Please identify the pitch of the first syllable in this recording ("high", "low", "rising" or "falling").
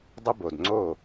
high